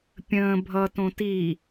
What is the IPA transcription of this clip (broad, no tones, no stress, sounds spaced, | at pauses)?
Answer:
pʲ ə̃ː bʱ ʌ t õ t i